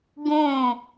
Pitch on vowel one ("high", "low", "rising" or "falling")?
falling